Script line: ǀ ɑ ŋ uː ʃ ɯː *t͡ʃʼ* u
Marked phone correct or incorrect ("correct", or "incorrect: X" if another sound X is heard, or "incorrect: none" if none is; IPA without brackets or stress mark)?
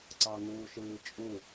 correct